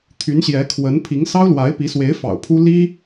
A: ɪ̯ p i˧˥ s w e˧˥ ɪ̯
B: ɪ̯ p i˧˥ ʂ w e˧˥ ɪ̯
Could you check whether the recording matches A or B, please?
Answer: A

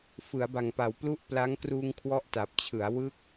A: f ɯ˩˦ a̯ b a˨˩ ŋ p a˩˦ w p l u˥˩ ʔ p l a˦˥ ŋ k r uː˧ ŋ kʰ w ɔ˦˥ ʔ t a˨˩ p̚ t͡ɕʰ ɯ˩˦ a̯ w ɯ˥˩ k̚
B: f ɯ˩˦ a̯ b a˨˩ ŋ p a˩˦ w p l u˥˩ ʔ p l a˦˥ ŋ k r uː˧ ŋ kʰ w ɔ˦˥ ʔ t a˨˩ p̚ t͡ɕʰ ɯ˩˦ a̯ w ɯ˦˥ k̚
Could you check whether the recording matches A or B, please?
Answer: A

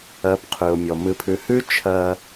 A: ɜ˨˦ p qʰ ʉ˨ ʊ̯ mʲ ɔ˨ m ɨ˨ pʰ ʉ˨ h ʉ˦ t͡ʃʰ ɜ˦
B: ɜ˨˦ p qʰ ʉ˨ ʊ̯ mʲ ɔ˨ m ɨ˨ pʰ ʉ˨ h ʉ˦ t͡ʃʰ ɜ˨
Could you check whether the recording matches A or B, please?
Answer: A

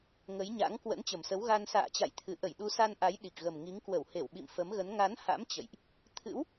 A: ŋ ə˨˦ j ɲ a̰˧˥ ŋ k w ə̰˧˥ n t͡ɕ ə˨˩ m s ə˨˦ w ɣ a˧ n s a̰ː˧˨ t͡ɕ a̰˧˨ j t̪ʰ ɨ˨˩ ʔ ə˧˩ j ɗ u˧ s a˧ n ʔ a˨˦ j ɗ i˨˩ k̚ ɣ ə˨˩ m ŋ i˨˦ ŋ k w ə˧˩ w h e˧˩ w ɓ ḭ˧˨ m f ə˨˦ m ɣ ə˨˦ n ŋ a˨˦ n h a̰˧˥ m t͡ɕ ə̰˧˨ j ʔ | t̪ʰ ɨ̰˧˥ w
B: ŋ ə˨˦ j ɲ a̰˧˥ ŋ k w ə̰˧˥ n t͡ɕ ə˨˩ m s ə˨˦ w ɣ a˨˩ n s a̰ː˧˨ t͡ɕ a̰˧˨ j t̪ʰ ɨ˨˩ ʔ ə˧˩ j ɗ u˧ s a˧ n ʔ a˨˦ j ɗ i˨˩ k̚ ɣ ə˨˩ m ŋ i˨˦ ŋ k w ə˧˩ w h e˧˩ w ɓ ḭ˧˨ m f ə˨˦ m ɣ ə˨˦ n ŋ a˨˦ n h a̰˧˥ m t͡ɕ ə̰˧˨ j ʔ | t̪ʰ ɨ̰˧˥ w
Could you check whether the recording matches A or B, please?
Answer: A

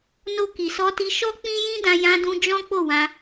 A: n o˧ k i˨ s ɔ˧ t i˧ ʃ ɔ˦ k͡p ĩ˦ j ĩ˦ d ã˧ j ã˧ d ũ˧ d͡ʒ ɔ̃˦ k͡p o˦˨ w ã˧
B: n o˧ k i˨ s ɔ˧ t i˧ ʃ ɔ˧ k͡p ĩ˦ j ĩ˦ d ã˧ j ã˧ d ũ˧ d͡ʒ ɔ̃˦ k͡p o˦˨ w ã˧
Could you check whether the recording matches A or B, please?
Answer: A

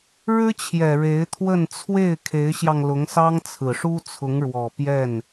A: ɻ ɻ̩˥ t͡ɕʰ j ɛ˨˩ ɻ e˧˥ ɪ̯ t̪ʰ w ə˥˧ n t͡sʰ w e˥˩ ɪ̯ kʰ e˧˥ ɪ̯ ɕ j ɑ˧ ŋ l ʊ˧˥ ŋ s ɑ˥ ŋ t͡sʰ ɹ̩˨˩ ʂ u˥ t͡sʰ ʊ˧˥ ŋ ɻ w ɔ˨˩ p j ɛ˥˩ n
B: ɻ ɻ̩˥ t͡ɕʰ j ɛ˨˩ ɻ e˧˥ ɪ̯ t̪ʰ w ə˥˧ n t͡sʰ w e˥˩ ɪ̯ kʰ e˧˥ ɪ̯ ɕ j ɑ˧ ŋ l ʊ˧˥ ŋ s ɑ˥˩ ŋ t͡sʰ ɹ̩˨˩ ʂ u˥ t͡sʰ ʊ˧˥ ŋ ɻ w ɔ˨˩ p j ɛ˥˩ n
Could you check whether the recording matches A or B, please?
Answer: A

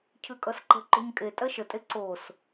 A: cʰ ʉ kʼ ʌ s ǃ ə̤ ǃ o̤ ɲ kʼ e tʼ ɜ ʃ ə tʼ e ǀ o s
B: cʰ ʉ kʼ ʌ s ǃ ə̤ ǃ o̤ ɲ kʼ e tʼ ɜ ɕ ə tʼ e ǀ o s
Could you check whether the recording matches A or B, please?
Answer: A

